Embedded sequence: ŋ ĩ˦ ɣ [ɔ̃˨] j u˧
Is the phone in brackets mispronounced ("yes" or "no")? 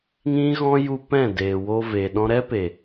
yes